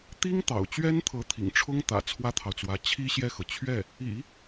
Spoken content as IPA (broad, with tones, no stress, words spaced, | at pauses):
t̪i˥ŋt̪ɑ̰˨˩ʊ̯ t͡ɕɥɛ˥n t̪ʰɤ˧˥t̪ʰḭ˨˩ŋʈ͡ʂʰʊ˥ŋt̪ä̰˨˩ t͡sʰwä˥t̪ʰɑ˨ʊ̯t͡swä˧˥ t͡ɕʰi˥ ɕjɛ˥˩xɤ˩ t͡ɕʰɥɛ˥˩ | ḭ˨˩˦